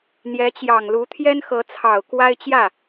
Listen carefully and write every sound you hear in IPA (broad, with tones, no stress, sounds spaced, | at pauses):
n̪ j ɛ˧˥ t͡ɕ j ɑ˨˩ ŋ l u˧˥ t̪ʰ j ɛ˥ n x ɤ˧˥ t͡sʰ ɑ˨˩ ʊ̯ k w a˥ ɪ̯ t͡ɕ j ä˥˩